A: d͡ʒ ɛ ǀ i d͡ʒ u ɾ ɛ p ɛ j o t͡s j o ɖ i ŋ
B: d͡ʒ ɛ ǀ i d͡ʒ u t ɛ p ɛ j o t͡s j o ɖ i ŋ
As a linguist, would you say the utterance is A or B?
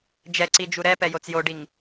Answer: A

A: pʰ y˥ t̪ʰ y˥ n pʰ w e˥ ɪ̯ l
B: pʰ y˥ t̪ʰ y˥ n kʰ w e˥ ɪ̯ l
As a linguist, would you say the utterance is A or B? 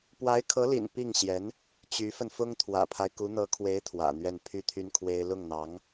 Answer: B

